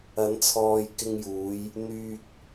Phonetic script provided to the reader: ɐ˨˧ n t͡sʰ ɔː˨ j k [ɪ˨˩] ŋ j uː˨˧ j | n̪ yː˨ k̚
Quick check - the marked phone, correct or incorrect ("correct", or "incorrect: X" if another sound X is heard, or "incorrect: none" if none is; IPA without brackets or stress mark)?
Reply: incorrect: ɪ˧